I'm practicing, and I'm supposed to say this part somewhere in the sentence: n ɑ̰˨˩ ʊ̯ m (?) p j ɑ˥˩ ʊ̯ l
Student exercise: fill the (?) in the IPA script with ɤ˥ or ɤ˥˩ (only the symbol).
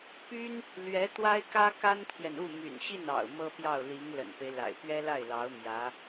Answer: ɤ˥